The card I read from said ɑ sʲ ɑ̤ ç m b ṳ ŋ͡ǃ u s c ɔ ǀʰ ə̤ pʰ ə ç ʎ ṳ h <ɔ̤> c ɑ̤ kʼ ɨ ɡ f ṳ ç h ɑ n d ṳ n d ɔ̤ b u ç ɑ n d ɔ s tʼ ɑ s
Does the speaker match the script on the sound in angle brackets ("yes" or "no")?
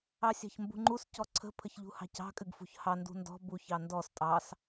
no